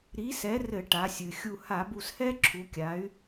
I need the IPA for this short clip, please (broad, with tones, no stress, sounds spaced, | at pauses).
ɾ i˨˥ s ɛ˨˥ r ɘ˧˩˧ ʈ a˩˧ sʲ ɨ˩ xʲ u˧˩ h a˧˩˧ b u˧˩ s h ɛ˥ ǁʰ u˩˧ kʲ a˩˧ y̯